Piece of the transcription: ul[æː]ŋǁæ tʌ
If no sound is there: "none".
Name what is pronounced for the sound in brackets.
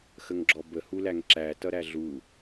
æ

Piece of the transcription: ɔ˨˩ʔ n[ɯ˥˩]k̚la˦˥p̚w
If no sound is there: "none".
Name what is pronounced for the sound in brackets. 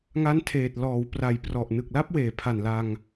ɯ˨˩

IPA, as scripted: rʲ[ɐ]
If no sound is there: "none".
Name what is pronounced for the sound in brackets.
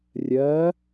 ɐ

